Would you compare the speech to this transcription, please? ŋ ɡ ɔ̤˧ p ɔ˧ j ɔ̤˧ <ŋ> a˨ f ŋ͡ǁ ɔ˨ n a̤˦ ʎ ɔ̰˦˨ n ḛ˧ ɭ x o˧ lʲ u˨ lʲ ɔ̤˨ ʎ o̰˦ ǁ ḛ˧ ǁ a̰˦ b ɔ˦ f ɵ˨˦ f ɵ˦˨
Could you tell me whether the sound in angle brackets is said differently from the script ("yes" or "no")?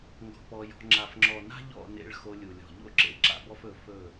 yes